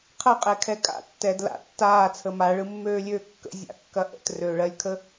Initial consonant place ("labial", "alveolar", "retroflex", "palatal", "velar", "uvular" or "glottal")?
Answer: uvular